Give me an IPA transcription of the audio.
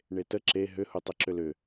ɳ e t ə ǁ e ɦ ʏ h u tˤ ʊ ǁ ʏ l ʏ

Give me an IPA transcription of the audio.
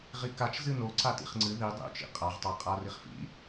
ʁ i k a t͡ʃ z ɨ n o ǀ a t ḭ χ ŋ͡ǀ ɨ ð i dˤ ḭ t͡ʃ ḭ qʼ a ʁ tˤ a qʼ a r i χ f ḭ

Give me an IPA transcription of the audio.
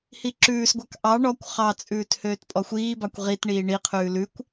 h i ǁ ʉː s ɡʷ ɑ k ʔ ɑ ɳ ɔ kʷ χ ɑ t͡sʼ ʉː t h øː t pʼ ɔ xʷ iː b ɑ kʷ ʁ i t ɳ iː ɳ i qʰ ʉː l ʉ kʷ

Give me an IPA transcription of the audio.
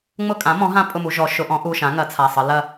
ŋ͡m ʊ˦˨ kʼ ã˩˥ m ɔ̃˩˥ ɦ ã˦˨ pʼ ʊ˦˨ m u˩˧ ʒ ɔ˩˧ ʃ ʊ˩˧ ʔ ɔ̃˩˥ ʔ u˩˧˩ ʃ ã˩˥ ŋ ɐ˩˥ t͡sʰ a˩˧˩ sˤ ə˩˧ l ɐ˦˨

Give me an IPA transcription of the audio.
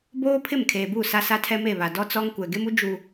b oː˦ pʰ ɪ˦˨ m kʰ eː˨ b u˦˨ s a˦ s a˦ tʰ ɛ˦ m e˦˨ β a˨ d ɔ˦ t͡s ɔ˦ ŋ kʷ ɛ˨ ɡ e˦ m u˦ d͡ʒ u˨

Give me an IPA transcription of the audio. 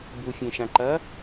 b u fʲ ẽ ʃ ã ǃ ɐ

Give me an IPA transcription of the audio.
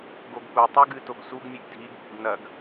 ɡ o ɡ p u tˤ u ɡ ɨ t o ɡ s u ɡ mʲ ɨ ɡ dʱ i ɡ ɓ u ɡ n ɐ ɡ

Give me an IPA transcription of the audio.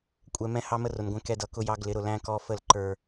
kʷʼ ɛ˨ m ɛ̃˦ h ɑ˦ m ə˦ r ʊ˨ n ɡʷ ɛ̃˦ k ɛ˦ d ʌ˨˦ k ʊ˦ j ɑ˦ ɡ l ɪ˨˦ ɾ ʊ˨ l æ̃˦ k ɔ˦ f ə˦˨ l ǃ ə˞˦

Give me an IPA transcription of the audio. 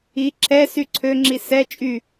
i ǁʰ ɛ s y ǀʰ ø ŋ͡ǁ i s ɛ t͡ʃʼ y

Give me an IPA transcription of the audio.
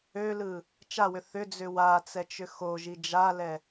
ø l ɯ | t͡ʃ a w ʏ θ ʏ d͡z ʏ w a t͡s ɛ t͡ʃ ʏ x o ʒ i d͡ʒ a l ɛ

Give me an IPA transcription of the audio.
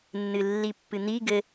nː ɨ lː i pː ɨ n̪ i ɡ ɘ

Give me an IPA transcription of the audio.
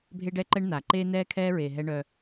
bʱ e˦ ɖ ɛ˦ ǃ ɛ˦ ɳ n̪ a˨ ǃ eː˦ n̪ ɛː˦ kʰ ɛː˦ ɹ eː˨ ɦ ɛ˦ ɳ œ˦

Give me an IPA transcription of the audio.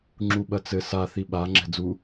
ŋ͡ǁ u ɓ ɐ t͡s ɘ s a θ i ɓ a ŋ͡ǁ ɛ̤ d͡z u

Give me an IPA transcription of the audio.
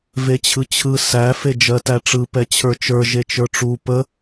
v e t͡ɕʰ ɯ t͡ɕʰ ɯ s æ f e d͡ʒ ɜ t æ ʈ͡ʂ ɯ p ɛ t͡ɕʰ ə˞ t͡ʃ ə˞ ʒ e t͡ʃ ə˞ ʈ͡ʂ u p ə

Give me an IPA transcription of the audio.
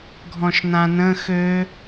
ɡʱ ɔ̃ ʃ n ã n ə̃ x ø

